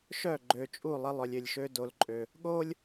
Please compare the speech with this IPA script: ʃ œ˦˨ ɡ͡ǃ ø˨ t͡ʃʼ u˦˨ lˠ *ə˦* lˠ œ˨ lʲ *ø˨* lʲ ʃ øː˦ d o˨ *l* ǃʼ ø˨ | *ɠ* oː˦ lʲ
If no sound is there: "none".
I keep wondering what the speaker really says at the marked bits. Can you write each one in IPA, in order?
ə˦, ø˨, l, ɠ

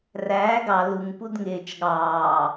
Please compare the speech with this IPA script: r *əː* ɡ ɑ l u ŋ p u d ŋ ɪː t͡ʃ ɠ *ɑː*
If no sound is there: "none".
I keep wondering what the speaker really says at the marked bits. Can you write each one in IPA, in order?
æː, ɑː

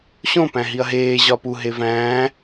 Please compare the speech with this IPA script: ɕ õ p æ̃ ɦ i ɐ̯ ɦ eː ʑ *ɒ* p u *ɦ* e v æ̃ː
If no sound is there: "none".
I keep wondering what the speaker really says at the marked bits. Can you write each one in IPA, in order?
ɒ, ɦ

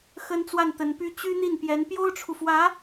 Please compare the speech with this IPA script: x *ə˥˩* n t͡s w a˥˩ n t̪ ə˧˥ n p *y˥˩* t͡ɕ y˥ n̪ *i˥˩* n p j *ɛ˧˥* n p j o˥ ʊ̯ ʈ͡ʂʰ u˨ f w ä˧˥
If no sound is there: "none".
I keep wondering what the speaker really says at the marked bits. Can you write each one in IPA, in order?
ə˥, y˥, i˥˩, ɛ˧˥

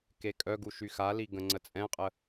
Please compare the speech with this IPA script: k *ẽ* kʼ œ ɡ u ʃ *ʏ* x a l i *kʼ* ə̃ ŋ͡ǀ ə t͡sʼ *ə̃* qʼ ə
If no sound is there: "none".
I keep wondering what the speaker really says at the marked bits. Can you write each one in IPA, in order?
e, y, ɡ, ɛ̃

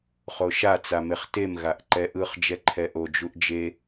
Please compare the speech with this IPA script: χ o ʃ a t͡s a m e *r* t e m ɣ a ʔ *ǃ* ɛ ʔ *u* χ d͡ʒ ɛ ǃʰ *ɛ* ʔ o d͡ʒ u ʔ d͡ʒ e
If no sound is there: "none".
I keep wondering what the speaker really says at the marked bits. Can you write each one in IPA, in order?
χ, ǃ, ɯ, ɛ

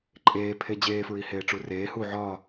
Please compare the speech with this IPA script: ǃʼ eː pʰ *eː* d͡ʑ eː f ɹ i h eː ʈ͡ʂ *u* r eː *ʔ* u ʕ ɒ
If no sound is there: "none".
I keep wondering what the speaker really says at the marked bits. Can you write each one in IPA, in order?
e, u, h

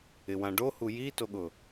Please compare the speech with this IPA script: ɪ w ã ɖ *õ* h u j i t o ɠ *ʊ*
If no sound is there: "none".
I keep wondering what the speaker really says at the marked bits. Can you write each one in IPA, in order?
o, ʊ

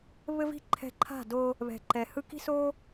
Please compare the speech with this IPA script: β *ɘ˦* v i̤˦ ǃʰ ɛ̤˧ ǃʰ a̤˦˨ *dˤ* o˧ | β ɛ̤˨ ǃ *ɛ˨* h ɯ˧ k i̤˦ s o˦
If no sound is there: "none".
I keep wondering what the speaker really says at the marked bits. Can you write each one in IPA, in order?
ɘ˦, d, ɛ˨

